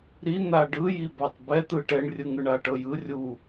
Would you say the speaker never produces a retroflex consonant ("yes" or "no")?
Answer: no